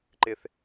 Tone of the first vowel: high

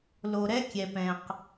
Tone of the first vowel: low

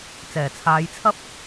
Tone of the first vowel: low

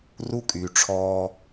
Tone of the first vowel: high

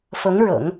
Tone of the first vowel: rising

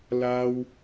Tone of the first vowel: high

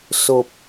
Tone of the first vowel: low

